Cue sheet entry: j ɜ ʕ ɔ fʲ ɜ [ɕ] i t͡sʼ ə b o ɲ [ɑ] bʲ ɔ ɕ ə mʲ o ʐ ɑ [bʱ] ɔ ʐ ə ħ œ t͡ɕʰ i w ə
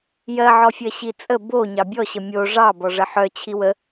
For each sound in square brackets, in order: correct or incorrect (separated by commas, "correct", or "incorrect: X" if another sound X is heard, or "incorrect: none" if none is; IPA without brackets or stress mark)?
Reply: correct, correct, incorrect: b